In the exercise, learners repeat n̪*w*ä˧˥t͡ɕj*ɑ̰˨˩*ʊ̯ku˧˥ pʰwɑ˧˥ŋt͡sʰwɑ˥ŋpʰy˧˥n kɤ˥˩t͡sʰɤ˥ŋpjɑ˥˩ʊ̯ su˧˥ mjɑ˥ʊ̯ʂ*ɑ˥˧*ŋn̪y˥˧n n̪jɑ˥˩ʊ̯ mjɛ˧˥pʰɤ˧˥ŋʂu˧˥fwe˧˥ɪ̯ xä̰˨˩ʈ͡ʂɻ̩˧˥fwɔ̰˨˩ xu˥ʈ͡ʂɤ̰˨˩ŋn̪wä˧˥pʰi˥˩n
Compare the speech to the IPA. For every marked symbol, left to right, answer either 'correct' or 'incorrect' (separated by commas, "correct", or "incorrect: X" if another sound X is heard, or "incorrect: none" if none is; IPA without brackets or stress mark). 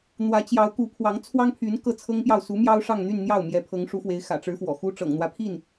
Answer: correct, incorrect: ɑ˧˥, correct